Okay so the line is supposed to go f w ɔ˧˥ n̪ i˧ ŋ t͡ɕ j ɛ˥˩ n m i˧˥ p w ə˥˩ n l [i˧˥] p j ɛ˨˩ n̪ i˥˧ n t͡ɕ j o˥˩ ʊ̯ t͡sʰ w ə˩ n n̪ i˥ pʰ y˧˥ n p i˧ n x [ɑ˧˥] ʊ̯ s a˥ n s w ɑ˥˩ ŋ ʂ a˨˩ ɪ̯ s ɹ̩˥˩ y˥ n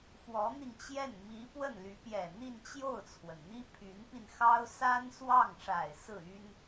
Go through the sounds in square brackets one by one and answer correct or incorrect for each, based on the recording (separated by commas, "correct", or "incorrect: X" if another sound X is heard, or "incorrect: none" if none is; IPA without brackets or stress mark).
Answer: incorrect: y˧˥, incorrect: ɑ˥